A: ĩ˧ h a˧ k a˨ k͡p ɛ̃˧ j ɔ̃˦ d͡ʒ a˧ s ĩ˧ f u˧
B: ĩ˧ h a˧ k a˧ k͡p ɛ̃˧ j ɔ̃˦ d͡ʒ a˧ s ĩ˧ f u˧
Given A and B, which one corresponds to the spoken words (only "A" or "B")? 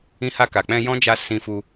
A